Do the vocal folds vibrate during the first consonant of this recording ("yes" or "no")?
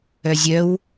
yes